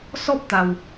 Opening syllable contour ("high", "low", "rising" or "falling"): high